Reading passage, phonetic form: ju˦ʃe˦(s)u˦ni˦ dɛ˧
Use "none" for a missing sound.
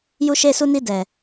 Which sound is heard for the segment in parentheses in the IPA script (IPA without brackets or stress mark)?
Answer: s